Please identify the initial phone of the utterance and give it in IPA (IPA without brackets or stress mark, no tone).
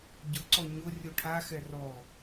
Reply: ɟ